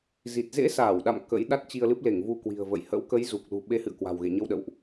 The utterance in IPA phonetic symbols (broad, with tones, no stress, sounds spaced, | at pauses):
z i˨˩ t̚ z ḛ˧˥ s aː˧˩ w ɗ a̰˧˨ m k ə̰˧˥ j ɗ a˦˥ t̚ t͡ɕ i˧ ə̯ l ɨ˦˥ p̚ l e˧˩ ŋ v u˧ k w i̤˨˩ ə̯ v ə̰˧˨ j h ə̰˧˥ w k ə˨˦ j z u˨˩ k̚ l ṳ˨˩ ɓ e˨˦ h ɨ̰˧˨ ə̯ k w a̤˨˩ w ɣ ḛ˧˨ ɲ ə˧ w ɗ ə̰˧˨ w ʔ